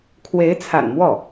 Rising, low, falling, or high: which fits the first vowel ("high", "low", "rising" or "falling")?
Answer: rising